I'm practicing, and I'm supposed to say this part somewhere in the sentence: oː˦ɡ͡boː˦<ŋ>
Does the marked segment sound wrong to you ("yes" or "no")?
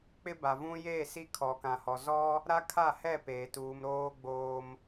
yes